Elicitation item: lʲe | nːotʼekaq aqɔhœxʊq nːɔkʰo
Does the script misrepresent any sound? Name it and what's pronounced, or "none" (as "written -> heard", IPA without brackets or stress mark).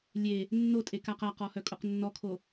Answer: x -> kʼ